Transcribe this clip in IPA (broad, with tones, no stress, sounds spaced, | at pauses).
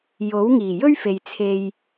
j o˨˥ w ŋ iː˨˩ j ɵ˥ ɥ f e˨ j t͡sʰ e˧ j